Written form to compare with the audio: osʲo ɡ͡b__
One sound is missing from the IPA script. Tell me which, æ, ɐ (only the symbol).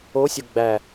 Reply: æ